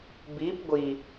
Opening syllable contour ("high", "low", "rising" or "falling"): rising